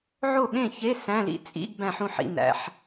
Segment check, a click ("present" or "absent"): absent